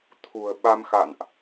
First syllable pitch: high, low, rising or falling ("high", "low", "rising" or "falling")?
low